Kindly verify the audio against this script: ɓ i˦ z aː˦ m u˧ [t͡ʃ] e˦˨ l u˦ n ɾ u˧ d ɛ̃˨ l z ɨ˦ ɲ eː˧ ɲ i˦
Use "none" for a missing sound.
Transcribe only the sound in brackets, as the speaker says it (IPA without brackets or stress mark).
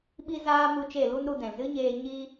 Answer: t͡ʃ